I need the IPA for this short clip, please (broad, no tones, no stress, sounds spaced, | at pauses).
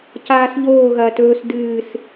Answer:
c aː s ʎ oː ɣ ɐː t ɵː s d ɨː s